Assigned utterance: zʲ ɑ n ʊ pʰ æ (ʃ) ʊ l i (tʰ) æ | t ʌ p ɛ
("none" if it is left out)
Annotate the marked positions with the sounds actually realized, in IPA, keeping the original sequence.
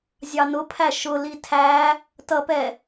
ʃ, tʰ

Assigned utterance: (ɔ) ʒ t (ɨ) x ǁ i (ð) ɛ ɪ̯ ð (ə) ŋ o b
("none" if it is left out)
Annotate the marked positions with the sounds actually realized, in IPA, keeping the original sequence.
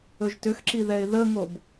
ɵ, ʏ, ð, ə

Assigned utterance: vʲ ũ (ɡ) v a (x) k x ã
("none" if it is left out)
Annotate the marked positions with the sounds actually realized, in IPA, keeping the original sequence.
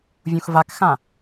x, none

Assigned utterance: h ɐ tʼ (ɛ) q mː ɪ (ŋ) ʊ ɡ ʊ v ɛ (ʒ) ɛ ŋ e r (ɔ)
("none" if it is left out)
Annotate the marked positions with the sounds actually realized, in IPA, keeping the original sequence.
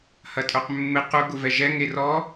œ, q, ʒ, ɔ

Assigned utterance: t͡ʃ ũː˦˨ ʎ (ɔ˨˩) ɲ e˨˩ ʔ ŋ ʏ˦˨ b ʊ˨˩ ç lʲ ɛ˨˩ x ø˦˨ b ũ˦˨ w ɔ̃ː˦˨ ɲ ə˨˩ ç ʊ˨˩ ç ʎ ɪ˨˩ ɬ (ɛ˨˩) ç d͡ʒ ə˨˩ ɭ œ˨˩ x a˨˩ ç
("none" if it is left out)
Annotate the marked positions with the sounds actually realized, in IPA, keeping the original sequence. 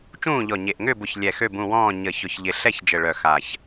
ɔ˨˩, ɛ˦˨

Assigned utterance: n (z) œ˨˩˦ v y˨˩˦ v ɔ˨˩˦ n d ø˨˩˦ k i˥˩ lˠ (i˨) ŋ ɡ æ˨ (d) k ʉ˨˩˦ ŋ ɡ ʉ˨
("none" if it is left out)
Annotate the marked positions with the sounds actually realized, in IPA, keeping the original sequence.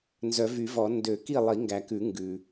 z, i˨˩˦, none

